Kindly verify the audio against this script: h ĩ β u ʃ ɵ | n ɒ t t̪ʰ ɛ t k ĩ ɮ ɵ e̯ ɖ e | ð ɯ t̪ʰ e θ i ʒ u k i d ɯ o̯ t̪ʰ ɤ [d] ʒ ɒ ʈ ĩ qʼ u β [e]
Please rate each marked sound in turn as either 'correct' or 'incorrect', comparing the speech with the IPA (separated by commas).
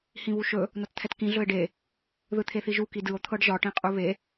incorrect, correct